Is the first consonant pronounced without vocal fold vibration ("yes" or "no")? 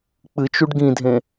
yes